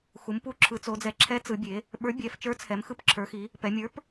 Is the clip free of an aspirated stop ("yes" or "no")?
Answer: no